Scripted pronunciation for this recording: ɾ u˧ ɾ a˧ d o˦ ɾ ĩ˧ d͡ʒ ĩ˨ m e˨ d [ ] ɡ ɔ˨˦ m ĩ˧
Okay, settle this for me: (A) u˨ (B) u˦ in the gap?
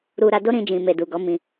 A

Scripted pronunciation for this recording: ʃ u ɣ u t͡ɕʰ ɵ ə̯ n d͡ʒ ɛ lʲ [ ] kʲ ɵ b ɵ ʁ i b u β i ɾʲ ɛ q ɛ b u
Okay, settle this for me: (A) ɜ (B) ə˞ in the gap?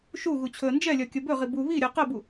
A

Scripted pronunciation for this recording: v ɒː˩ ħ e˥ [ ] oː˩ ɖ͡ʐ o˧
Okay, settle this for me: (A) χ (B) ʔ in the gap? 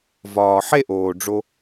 B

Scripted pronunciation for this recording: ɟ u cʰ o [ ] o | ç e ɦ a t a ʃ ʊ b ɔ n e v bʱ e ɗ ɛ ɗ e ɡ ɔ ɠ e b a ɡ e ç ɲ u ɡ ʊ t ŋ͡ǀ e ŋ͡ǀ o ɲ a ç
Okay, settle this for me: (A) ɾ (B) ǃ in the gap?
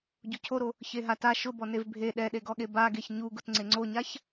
A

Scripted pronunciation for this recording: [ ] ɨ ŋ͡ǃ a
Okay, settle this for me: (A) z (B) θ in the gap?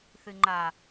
B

